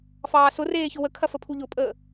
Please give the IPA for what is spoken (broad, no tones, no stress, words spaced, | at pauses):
fɑːsʊreː çʊwəkʰɐfə pʰuʎʊpʼəː